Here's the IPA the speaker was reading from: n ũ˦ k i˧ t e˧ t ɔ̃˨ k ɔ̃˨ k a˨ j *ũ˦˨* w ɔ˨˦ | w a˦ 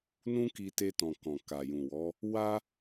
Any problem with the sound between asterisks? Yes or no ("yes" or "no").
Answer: yes